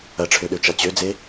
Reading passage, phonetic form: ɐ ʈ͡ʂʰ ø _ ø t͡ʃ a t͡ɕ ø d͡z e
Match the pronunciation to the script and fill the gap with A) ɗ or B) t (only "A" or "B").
A